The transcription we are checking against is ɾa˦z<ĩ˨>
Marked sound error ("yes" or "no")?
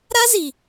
yes